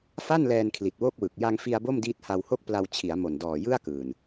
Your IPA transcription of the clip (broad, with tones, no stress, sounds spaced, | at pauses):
f a˥˩ n l ɛː˧ n kʰ l i˨˩ t̚ w o˥˩ k̚ w ɯ˨˩ k̚ j a˧ ŋ f i˧ a̯ b o˥˩ m d iː˦˥ t̚ h a˧ w h o˥˩ k̚ p l a˧ w t͡ɕʰ i˩˦ a̯ m o˨˩ n d ɔː˨˩ j ɯ˥˩ a̯ k ɯː˨˩ n